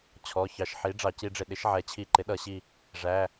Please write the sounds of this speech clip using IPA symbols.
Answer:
t͡ɕʰ ɔ˩˧˩ ç ɑ˩˥ ʃ ħ i˩˥ ɖ͡ʐ ɑ˧˩˧ c i˧ ɖ͡ʐ ɪ˧˩ ɗ ɪ˩˥ ʃ ʕ ɛ˩˥ t͡ɕʰ i˧˩˧ ǃ ɪ˩˥ ɗ ʌ˧˩˧ ɕ i˧˩ | ʐ æ˩˧˩

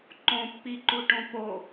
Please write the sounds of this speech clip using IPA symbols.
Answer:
ǃ õ pː i ǃ u ʈ õ p o

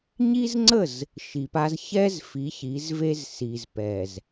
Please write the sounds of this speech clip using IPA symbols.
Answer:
ɲ i˦ z ŋ͡ǀ ə˦˨ z | ʃ i˨ p a˦ z ç ɛ˦ z f i˨˦ ç i˨˦ z v e˦ z s i˨ z p ɛ˨ z

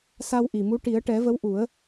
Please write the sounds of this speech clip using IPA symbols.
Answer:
s a˧ w ʔ i˨˩ m u˧˥ ʈ i˨˩˦ ə̯ ʈ ɛ˨˩˦ v ə˧˥ w ʔ u˨˩˦ ə̯

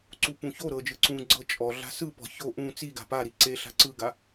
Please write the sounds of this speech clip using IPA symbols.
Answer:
ǀ u p ũ ç o ɾ ɤ d͡ʒ ɯ ǀ ũ ɡ͡ǀ ɤ t͡ʃʼ ɔ ɮ a̤ s ɯ p ɔ̤ ç o ʔ ũ t͡s i ɡ a̤ p a ɾ i ǀ e ɬ a̤ ǀ ɯ ɡ a

